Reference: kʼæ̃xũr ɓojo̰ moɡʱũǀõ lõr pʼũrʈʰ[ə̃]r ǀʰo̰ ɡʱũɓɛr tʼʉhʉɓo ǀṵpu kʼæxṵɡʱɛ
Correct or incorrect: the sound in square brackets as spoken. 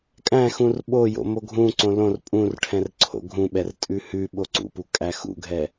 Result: incorrect: ɛ̃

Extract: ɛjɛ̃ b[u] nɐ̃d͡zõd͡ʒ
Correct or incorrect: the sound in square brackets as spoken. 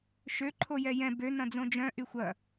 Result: incorrect: ø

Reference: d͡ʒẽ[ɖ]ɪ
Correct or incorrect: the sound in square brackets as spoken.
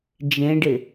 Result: correct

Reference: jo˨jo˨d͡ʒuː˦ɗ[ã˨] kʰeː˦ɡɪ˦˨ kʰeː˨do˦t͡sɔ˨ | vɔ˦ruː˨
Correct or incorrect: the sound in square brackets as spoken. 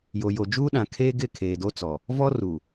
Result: correct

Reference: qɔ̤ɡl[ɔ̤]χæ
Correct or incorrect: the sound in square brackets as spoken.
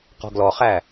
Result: incorrect: ɔ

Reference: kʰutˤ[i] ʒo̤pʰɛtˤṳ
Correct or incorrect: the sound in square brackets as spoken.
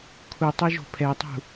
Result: correct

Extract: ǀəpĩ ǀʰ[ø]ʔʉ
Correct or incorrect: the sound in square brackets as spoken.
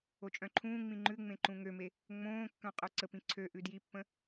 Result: correct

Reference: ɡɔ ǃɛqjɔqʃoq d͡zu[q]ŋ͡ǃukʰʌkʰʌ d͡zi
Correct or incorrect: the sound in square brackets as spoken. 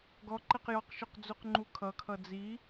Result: correct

